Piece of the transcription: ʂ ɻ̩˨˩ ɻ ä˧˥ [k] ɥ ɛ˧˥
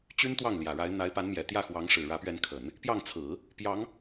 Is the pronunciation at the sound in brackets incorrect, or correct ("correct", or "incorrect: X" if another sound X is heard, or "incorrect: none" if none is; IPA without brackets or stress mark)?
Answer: incorrect: p